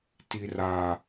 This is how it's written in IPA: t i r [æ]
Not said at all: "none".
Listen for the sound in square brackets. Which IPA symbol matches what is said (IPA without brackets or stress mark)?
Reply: a